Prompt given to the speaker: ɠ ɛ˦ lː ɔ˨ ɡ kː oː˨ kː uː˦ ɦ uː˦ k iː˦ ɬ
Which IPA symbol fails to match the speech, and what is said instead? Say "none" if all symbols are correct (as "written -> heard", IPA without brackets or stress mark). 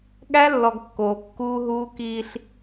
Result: ɛ˦ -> æ˦